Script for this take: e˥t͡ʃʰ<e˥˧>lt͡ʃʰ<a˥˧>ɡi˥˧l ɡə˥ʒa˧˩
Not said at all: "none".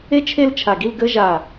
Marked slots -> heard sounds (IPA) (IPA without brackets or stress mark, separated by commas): e˥˧, a˧˩